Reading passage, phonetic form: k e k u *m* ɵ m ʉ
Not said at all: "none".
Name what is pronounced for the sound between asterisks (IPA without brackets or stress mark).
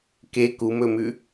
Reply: m